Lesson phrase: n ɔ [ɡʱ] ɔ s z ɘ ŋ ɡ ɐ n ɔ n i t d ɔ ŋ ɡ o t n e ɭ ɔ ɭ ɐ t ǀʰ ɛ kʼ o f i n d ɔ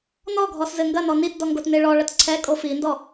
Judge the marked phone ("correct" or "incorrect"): correct